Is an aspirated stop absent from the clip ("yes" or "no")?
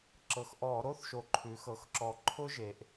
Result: no